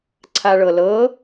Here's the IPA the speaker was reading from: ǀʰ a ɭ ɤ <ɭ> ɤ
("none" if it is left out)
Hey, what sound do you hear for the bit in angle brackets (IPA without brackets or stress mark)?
l